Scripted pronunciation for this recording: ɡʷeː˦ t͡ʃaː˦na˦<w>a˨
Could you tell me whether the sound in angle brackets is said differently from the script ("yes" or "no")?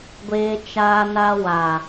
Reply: no